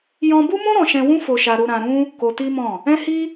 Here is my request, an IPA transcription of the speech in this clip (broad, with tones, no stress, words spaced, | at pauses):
jɔ̃˧bu˦mũ˦ ɾɔ̃˧ʃɛ̃˧wũ˦ fo˧ʃa˧ɾu˧ ɾã˧ɾũ˦ | ko˧ti˦mɔ̃˦˨ | ɛ̃˦hi˦